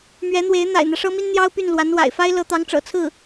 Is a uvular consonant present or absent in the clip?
absent